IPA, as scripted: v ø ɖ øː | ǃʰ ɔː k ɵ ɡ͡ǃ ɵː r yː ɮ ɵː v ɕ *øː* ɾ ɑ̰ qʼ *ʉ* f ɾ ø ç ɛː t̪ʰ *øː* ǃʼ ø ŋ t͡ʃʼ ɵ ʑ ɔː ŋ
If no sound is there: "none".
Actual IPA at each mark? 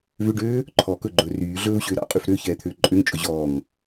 øː, ʉ, øː

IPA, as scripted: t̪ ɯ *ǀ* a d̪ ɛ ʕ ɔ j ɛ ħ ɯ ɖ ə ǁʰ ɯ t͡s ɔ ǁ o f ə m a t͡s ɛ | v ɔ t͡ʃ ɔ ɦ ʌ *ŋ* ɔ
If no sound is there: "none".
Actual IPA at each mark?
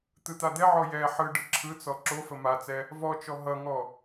t̪, ŋ

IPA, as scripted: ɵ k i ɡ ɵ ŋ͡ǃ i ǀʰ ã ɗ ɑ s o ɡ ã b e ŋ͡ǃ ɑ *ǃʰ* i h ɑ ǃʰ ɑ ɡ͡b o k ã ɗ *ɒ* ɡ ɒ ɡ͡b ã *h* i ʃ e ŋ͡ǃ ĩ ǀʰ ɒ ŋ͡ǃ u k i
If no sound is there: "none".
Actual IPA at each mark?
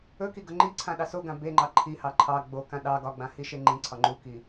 ǃʰ, ɑ, h

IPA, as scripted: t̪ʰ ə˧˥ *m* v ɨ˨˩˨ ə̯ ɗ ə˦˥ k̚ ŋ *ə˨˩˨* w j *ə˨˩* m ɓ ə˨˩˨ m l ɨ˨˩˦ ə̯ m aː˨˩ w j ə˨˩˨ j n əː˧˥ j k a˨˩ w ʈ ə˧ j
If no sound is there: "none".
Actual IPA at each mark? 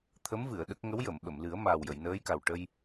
m, ə˧˥, ə˨˩˨

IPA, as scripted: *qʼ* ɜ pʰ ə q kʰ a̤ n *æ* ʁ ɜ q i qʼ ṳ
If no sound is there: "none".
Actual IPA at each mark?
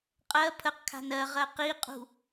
qʼ, ɜ

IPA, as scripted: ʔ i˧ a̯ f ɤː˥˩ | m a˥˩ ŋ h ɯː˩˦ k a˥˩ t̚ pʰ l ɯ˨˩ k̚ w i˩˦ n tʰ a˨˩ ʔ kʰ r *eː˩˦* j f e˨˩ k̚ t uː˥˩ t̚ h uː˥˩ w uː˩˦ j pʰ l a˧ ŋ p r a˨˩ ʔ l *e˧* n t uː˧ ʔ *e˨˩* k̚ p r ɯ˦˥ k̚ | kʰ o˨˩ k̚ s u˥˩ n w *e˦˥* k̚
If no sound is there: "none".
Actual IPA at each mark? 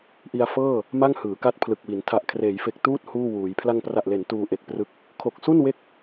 eː˩˦, e˩˦, e˨˩, e˦˥

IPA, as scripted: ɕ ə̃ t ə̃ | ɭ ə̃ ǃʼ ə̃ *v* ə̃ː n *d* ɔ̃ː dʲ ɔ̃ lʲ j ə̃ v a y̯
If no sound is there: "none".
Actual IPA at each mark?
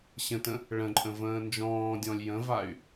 v, d͡ʒ

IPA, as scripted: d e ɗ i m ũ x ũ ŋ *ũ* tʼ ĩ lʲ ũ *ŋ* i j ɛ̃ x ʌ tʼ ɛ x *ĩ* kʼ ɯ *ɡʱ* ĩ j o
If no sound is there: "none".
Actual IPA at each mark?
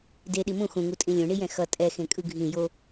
u, ɳ, ẽ, ɡʱ

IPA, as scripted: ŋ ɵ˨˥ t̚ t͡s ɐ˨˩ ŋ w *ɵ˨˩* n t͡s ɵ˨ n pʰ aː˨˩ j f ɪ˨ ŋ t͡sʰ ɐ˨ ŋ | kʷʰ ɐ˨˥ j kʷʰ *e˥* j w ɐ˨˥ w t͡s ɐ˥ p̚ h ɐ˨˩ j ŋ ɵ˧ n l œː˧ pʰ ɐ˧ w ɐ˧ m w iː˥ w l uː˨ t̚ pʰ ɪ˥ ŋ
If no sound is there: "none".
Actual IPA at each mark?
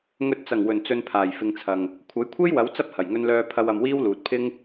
ɵ˨˩, e˥

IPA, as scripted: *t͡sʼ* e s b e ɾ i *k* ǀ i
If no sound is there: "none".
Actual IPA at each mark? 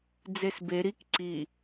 d͡z, k

